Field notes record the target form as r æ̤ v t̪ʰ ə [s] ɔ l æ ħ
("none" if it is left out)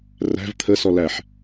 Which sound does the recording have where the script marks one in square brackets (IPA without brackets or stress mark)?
s